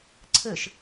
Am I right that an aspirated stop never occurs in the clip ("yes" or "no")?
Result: no